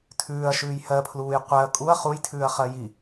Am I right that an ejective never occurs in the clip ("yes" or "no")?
no